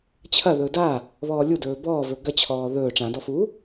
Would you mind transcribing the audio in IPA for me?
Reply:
t͡ɕʰ ɐ ð ɵː d a | β ɔː lʲ u d ɵː b ɔː v ɵ ɡ ɐ t͡ɕʰ ɔː ð ɵː ʈ͡ʂ ã d ɔ f u

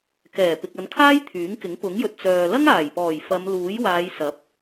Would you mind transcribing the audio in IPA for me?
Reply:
k ɛː˨˩ p ɪ˨ k̚ ɐ˨˧ n kʰ aː˥ j t̪ʰ yː˨˥ ŋ k ɪ˨˥ ŋ p ʊ˨˥ ŋ j ɵ˨ t̚ t͡s œː˨ l ɐ˥ ŋ aː˨˩ j p ɔː˨˩ j f ɐ˨˧ m l uː˨˥ j w aː˨˧ j s ɐ˨˥ p̚

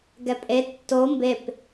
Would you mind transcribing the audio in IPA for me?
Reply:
ɡ ɛ pʼ e tː o m b e p

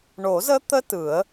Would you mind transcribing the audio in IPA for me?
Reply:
ɳ o˨˩˦ z ə˦˥ t̪ ə˦˥ t ɯ˨˩˦ ə̯

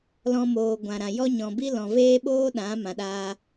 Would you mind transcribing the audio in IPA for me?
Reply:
l ɔ̃˧ m oː˨ ɡʷ ã˨ ɾ ã˨ j ɔ˦ ɲ ɔ̃˨ b i˦ l ɔ̃˨ v eː˦ ɓ oː˦ ɗ ã˨˦ m ã˧ ɗ aː˦

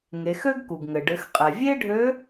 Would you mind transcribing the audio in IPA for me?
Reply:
ŋ e˩˧ x ø˥ ɡ k u˩ ɡ ŋ ɘ˩ ɖ ɘ˩˧ x qʼ ɛ˩ vʲ e˥ ɖʱ ø˧˥

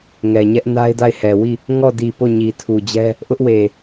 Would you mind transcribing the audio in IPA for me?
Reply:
ŋ ɛ˨ ɲ ɛ˦ ʔ n a˦ ɪ̯ d a˦˨ ɪ̯ h ɛ˨ w i˦˨ | ŋ ɔ˦˨ d i˨ p o˦˨ ɲ i˨ tʰ u˨ d͡ʑ ɛ˦ | ʔ ʊ˦ ʔ w e˨

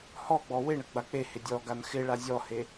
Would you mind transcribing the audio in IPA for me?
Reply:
h ɔ ɡ͡b ɔ w ɪ ɳ ə ɡ͡b a k͡p e h ɪ dʲ ɔ ɡ a n x ɪ ɭ a zʲ ɔ h e

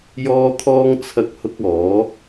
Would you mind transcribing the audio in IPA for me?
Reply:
j ɔː˥ t̪ʰ ɔː˥ ŋ t͡sʰ ɐ˥ k̚ h ʊ˥ k̚ ɔː˨˥

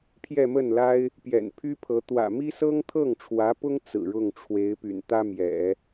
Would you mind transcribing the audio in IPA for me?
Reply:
pʰ j ɛ˥˧ m ə˥˩ n l a˥ ɪ̯ | p j ɛ̰˨˩ n pʰ y˥ pʰ ɤ˧˥ t̪ w ä̰˨˩ m i˥ s ɤ˥ ŋ t̪ʰ ɤ˥˩ ŋ ʈ͡ʂʰ w ä˧˥ p ʊ˥ ŋ t͡s ɹ̩˨˩ ɻ ʊ˥˩ ŋ ʈ͡ʂʰ w e˧˥ ɪ̯ p y̰˨˩ n t̪ ä˥ m j ɛ̰˨˩˦

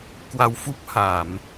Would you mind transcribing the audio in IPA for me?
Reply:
k w a˧ w f u˦˥ p̚ h a˧˩˨ m

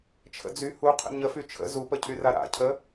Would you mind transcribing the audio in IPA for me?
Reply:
t͡ʃʰ ə̰ d͡z y h u qʰ ə̰ ɲ ə f y t͡ʃʰ ə̰ z u p ə cʰ y r a ɾ a̰ cʰ ə

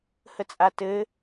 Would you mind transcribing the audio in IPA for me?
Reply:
h ə t͡sʼ a t ɘ

